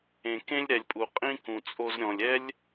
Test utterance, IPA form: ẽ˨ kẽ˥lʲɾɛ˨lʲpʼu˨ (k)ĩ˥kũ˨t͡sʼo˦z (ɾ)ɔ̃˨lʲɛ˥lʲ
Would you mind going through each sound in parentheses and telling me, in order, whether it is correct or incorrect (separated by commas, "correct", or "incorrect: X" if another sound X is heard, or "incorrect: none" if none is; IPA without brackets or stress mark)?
incorrect: qʼ, incorrect: ɾʲ